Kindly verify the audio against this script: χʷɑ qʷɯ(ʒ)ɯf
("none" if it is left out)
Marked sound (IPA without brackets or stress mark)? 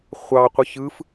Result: ç